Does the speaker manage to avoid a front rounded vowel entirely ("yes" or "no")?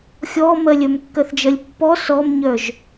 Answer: no